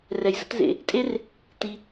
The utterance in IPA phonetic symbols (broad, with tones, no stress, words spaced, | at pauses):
rɛ˨j zə̰˥tzḛ˨˩˦ | tʼe˥r | ti˨